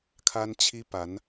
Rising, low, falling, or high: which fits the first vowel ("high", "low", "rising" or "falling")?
high